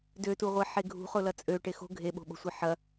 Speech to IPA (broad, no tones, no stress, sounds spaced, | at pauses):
d ø t u ʁʷ e ħ e ɡʱ ṳ χ ʊ l ɐ t͡sʼ ø ʈ e x o̤ ɡʱ e ɓ o̤ ɓ o̤ sʷ e ħ ɐ